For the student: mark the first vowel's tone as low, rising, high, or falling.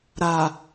low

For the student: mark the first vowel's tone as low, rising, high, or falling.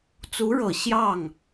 rising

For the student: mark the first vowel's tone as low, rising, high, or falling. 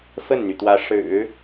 falling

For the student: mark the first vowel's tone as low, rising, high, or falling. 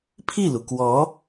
falling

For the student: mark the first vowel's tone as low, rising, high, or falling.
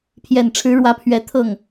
low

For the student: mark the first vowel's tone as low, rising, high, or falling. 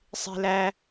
high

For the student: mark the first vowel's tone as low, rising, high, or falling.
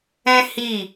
high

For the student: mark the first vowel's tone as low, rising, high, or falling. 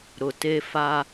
low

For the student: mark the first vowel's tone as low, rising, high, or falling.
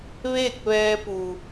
falling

